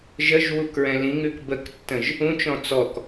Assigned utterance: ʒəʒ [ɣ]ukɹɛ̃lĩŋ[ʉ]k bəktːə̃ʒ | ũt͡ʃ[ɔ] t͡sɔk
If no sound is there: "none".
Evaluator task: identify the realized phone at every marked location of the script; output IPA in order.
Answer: w, ʉ, ɔ̃

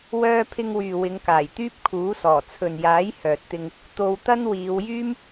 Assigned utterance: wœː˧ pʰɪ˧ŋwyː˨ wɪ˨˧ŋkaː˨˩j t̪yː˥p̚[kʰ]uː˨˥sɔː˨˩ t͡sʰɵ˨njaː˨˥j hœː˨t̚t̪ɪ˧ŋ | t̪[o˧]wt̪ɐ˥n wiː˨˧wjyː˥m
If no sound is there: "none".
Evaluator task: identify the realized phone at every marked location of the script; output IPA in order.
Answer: kʰ, o˧

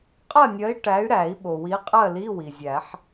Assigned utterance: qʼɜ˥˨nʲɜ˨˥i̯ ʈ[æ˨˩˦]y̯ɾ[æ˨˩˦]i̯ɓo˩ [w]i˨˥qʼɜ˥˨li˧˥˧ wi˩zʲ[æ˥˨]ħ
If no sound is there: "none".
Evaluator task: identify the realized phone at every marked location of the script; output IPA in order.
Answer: æ˨˥, æ˨˩˦, w, æ˨˩˦

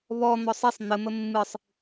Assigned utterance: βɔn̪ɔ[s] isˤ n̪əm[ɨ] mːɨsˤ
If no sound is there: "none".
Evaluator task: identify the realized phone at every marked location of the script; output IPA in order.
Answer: sˤ, ə

